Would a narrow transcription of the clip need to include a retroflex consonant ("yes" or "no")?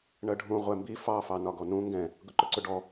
yes